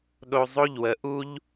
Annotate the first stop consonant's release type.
implosive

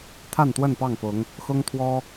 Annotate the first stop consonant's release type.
aspirated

